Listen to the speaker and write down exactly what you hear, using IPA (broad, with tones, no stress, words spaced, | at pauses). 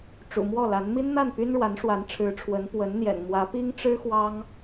ʈ͡ʂṵ˨˩mwɔ˥˩la˧˥n mi˥nn̪a˥˩n py˥nɻwa˧˥nʂwa˧˥n ʈ͡ʂʰɻ̩˧˥ʈ͡ʂʰwə˧˥n pwə˧˥nn̪jɛ̰˨˩nmwä˧˥ pi˥ŋ ʈ͡ʂɻ̩˥ xwɑ˥ŋ